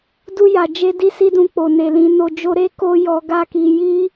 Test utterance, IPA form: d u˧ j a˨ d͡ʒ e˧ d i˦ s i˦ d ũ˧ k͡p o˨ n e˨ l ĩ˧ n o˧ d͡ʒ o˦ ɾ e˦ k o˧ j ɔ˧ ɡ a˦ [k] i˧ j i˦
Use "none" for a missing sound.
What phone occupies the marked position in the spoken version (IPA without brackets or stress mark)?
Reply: k